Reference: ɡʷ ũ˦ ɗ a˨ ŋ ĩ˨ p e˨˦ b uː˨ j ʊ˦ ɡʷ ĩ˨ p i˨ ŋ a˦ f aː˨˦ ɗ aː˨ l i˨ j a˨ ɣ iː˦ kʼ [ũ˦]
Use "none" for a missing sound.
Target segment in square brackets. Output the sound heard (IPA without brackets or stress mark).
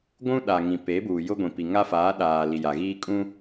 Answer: ũ˦